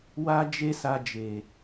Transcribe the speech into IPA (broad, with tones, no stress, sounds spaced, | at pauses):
w a˦ d͡ʒ e˦ s a˧ d͡ʒ e˨